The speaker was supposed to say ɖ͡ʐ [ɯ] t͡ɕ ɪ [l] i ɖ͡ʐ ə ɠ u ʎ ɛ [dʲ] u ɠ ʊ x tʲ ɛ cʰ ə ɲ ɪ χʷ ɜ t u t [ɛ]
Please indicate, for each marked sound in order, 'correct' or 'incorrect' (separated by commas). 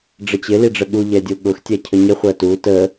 incorrect, correct, correct, incorrect